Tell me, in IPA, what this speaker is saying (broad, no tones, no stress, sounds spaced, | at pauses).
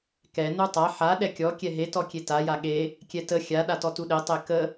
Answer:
k ɛ n u tˤ a ħ a ɗ ɛ kʲ ɔ kʲ ɛ ɦ e t ɔ kʲ e t a j a ɠ e | kʲ ɛ t ə xʲ a ɗ a t ɔ t u ɗ e tˤ e k ə